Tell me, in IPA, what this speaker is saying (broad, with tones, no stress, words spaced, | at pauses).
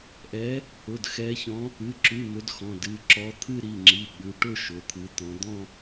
ʔɛ˨˦ | ʊ˩˧˩dxɛ˨˦çɔ̃˨˦ | ɨ˩˧˩ǁʉ˩˧˩ mʊ˨˦dxɔ̃˩˧˩d ɨ˩˧˩ ǁɔ˨˦t̪ʰɨ˥˧ɾi˩˧˩ŋ͡ǁi˩˧˩ ɠʉ˨˦ ʈʊ˥˧ ʃʊ˩˧˩t̪ʰɨ˨˦t̪ɔ̃˨˦ d̪ɔ̃˥˧